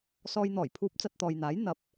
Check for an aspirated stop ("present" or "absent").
present